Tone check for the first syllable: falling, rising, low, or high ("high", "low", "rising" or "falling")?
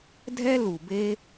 high